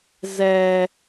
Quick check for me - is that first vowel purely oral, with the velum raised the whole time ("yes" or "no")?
yes